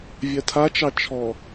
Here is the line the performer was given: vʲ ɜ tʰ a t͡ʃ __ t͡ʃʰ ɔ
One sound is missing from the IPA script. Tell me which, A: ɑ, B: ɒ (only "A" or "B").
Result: A